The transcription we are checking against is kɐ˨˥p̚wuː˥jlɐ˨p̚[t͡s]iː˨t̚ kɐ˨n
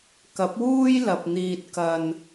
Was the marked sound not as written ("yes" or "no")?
yes